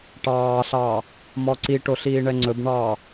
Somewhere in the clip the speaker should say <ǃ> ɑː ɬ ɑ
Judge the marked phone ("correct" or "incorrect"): incorrect